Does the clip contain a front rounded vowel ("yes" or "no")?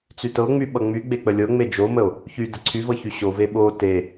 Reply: yes